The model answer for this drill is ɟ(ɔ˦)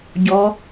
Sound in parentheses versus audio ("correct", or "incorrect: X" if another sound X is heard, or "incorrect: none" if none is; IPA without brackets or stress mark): incorrect: ɔ˨˦